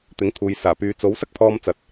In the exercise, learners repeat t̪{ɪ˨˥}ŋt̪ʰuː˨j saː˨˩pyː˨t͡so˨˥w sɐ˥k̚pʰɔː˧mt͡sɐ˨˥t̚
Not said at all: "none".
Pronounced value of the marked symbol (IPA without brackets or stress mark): ɪ˨˥